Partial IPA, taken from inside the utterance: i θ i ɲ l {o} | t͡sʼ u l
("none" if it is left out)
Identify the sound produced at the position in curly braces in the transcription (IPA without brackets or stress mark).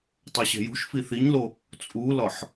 o